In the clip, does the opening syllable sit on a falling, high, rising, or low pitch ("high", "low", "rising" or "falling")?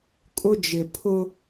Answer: high